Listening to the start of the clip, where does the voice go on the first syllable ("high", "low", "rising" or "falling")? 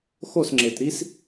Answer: falling